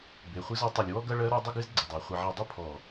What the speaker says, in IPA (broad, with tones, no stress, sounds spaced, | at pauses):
b e˨˦ χʷ ɨ˦ z ɔ˦ tˤ ɐ˨ lʲ w ɔ˦ ɡ ɐ˦ ɭ ɜ˦ ɾ ɔ˦ dˤ ə˦ ɡ ɨ˦ z ɡ͡ǀ ə˨ dˤ ɜ˨ χʷ ɐ˨ ʕ ɐ˨ dˤ ə˦˨ pʰ ɔ˨